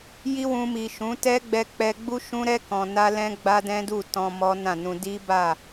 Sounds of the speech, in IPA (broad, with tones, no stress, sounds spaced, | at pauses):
j i˦ w ũ˧ m i˨ ʃ ũ˨˦ t ɛ˦ ɡ͡b ɛ˧ k͡p ɛ˧ ɡ͡b u˦ ʃ ũ˦ ɾ ɛ˦ k ɔ̃˧ n a˦ l ɛ̃˦ ɡ͡b a˦ d ɛ̃˦ d u˦˨ t ɔ̃˧ m ɔ˦ n ã˦˨ n ũ˧ d i˦ b a˦˨